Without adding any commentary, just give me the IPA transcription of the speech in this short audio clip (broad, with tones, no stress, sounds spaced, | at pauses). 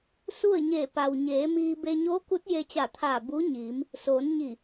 s u˥˨ ə̯ ɲ e˧˩ p a˩ w ɲ eː˩˧ m iː˧ b e˧ ɲ oː˧˥ k u˧˥ t̚ j e˧ t͡ɕ a˧˩ t̪ʰ aː˧˩ b u˧˥ ɲ iː˩˧ m | s oː˩˧ n ɲ i˧˩